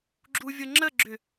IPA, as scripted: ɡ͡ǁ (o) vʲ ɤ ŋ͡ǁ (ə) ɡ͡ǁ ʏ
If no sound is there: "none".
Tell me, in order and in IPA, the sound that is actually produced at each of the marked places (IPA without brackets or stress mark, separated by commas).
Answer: u, ə